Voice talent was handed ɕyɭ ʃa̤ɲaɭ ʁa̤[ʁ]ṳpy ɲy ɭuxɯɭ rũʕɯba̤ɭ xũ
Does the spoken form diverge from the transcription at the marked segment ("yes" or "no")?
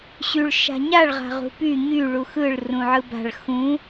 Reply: no